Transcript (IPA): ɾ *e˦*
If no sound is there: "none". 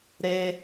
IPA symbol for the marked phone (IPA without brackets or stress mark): e˦